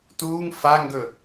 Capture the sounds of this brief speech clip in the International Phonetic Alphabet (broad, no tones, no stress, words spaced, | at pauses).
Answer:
tuːŋ faŋɡɵ